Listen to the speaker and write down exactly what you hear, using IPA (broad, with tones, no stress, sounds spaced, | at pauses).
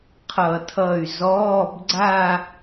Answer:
qʰ ʌ˧˩˧ tʰ ʌ˧˩ y̯ z ɔː˧˥˧ b ɡ͡ǀ a˥˧